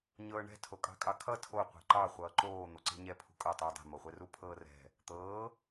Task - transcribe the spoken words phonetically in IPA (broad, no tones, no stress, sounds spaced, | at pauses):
ɲ ɤː ɳ ɛ̤ tʰ o kʼ ɑ̤ kʼ ɑ kʰ ʌ tʰ o qʷ ɛ̤ ǃ ɑ χʷ ʌː ǃ oː n̪ o ǀ e̤ ɲ ɛ pʰ ṳ kʼ ʌ tˤ uː dˤ e̤ m o χʷ ɛ r u pʰ ɤː r ɛ̤ | t̪ ɤː